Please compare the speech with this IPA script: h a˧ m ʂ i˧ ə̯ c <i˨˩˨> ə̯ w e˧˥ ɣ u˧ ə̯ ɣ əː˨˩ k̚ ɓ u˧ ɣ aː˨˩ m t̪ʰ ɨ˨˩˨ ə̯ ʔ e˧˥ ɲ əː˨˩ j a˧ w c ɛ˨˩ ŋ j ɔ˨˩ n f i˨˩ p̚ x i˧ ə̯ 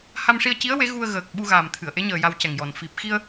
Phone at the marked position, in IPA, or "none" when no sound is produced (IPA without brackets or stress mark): i˧˥